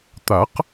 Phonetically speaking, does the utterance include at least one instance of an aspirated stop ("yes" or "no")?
no